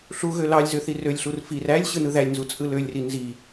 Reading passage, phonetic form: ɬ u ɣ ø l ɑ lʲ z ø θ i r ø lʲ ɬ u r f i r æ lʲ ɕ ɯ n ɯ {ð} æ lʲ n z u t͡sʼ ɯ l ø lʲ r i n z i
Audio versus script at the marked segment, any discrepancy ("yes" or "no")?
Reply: no